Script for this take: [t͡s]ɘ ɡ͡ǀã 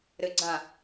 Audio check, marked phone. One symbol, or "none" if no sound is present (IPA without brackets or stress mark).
ɾ